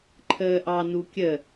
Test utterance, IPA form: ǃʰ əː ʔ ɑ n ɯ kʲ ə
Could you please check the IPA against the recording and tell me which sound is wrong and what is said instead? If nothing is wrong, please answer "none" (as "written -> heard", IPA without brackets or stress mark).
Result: ɯ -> u